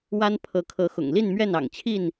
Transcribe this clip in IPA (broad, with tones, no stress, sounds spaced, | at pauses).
w a˦ n pʰ ɤ˨˦ kʰ ɤ˨˦ x ʊ̰˨˩ ŋ l i˥˨ n m ɥ ɛ˥˨ n ɑ̰˨˩ ŋ t͡ɕʰ i˥˨ n